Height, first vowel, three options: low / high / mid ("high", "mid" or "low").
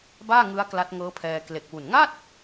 low